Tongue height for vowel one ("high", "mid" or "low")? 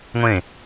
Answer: mid